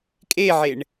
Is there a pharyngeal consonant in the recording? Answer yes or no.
yes